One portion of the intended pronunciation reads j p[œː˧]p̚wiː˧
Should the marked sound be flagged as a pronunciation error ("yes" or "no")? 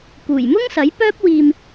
yes